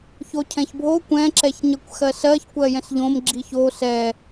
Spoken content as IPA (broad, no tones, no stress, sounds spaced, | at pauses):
ç o cʰ ɛ̃ ç bʱ o kʷ ɛ̃ ǁ ɛ ç ɲ ɜ kʷ x ɜ s ɜ ç kʷ ɜ j ɛ̃ s ʎ õ m ɡ͡ǁ i ç o s ɛ